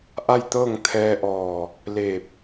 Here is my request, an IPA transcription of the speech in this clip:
ʔ a˥˨ j t̪ ɤː˥˨ ŋ t̪ʰ ɛː˧ ʔ ɔː˧˩ | l e˧˩ p̚

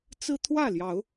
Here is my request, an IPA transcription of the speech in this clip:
t͡s ɹ̩˦ t̪ʰ w ä˥˨ l j ɑ˨˦ ʊ̯

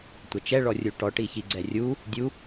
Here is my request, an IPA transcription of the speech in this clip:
tʷ ɛ t͡ʃ ɛ ɭ ɔ rʲ u ʈ ɔ ʈ i ç i ɡ͡ǀ ɛ rʲ u | dʲ u

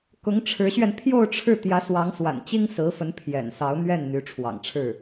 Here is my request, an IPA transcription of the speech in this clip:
k ʊ˧˥ ŋ ʈ͡ʂʰ ɻ̩˧˥ ɕ ɥ ɛ˧ n pʰ j o˥˧ ʊ̯ ʈ͡ʂʰ ɻ̩˥˩ t̪ j ä˧˥ s w ɑ˧˥ ŋ s w a̰˨˩ n t͡ɕ i˥ ŋ s ɹ̩˧˥ f ə˧˥ n pʰ j ɛ̰˨˩ n s ɑ˧˥ ʊ̯ n̪ ɥ ɛ˥˩ n n̪ y˧˥ ʈ͡ʂʰ w ɑ̰˨˩ ŋ ʈ͡ʂʰ ɻ̩˥˩

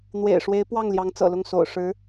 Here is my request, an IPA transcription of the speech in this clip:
n̪ w ḛ˨˩ ɪ̯ ʂ w e˧˥ ɪ̯ p w ɑ˥˩ ŋ l j ɑ˧˥ ŋ t͡s ɤ̰˨˩ l ʊ˥˩ ŋ s o̰˨˩ ʊ̯ ʂ ɻ̩˧˥

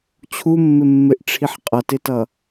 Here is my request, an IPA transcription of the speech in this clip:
t͡ɕʰ u mː ɪ mː ɪ ʔ ʈ͡ʂʰ i ħ qʼ ʌ t ɪ t ʌ

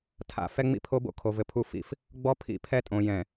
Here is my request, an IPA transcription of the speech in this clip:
tʰ a̰˨ f ɛ˦ ŋ͡m ḭ˦ pʰ o˦ b o̰˦ kʰ o˨ v ɘ˨ pʰ u˦ f ḭ˦ f | ɡ͡b ɔ˦ pʰ ḭ˦˨ pʰ ɛ˦ tʼ õ˨ j ɛ̃˨

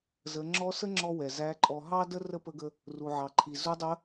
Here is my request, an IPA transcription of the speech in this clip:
z ə˩˧ ŋ͡ǁ ɔ˧˥ s ə˥ ŋ͡ǁ ɔ˧ w ɛ˩ z æ˧˥ ǃʼ ɔ˧ ɦ ɑ˥ d ə˥ r ə˥ p ə˧˥ ɡ ə˧ | r u˩ ʕ ɑ˩ ǃʰ i˩ z u˧˥ dˤ ə˧˥

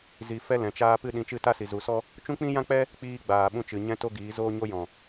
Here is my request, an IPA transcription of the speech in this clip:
z i˧ f ɛ˦ l ɛ̃˨ t͡ʃ aː˦ p ɨ˦ ɗ ĩ˨˦ t͡ʃ ɨ˦˨ t a˦ s i˨ z u˨ s ɔ˦ | t͡ʃ ũ˦ k͡p ĩ˦ j ã˦ k͡p ɛ˦ | k͡p iː˧ ɡ͡b aː˨ ɓ ũ˧ t͡ʃ ɨ˨ ɲ ɛ̃˦ t o˦ ɡ iː˨˦ z oː˦ ɲ o˦ j ɔ̃˨

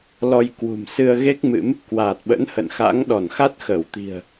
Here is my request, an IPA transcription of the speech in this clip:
l ɔ˧ j k w ṳ˨˩ m s ɨ˧ ə̯ ɣ e˦˥ k̚ m ɨ̰˧˥ m | k w aː˨˩ t̚ ɓ ə̰˧˥ n h ə̰˧˨ n x a̰˧˥ ŋ ɗ ɔ˧˩ n x a˦˥ t̚ x əː˧˩ w t̪ i̤˨˩ ə̯

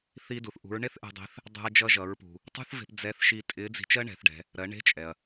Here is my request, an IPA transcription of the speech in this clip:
θ i˧ d u˩ θ ʔ ṳ˩˧ ɹ ɳ e˥ θ ʔ ɛ̤˧ dˤ i̤˧˥ θ | dˤ ɛ̤˧ ɐ̯ d͡ʒ ʌ˧ ʒ ʌ˩˧ ɹ p ṳ˩ | tˤ ṳ˥ θ v e̤˧ p d͡z ɛ˧˥ θ ʃ i˧ tʼ ɪ˧˥ d͡z i̤˧ t͡ʃ ɜ˥ ɳ ɛ̤˩˧ θ ɖ ɛ̤˩˧ | ɾ ɜ˩˧ ɳ e̤˧˥ t͡ʃʼ ɛ˩ ɐ̯

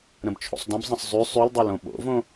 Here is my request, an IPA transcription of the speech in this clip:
ɾ ə̃ b t͡ʃʰ o̰ sˤ d ə̃ b zˤ ə̃ sˤ zˤ y sˤ y l dˤ o l õ ɓ o̰ v õ

